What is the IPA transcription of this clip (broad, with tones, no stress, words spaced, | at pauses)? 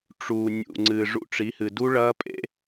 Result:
ʈ͡ʂu˨ nʲṵ˨ ŋ͡ǀɨː˨ʐṵ˧ʈ͡ʂi˨˦hɨ˨ du˦ɭɐː˦pʼḛ˦